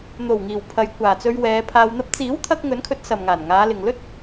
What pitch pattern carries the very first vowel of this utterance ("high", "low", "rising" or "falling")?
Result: low